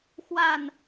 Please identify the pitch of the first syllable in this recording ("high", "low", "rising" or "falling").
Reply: falling